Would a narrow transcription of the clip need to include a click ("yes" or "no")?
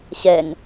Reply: no